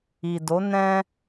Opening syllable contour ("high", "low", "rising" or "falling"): low